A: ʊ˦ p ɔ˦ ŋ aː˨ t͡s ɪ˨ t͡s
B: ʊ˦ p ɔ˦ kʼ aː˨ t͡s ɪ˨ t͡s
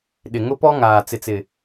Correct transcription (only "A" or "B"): A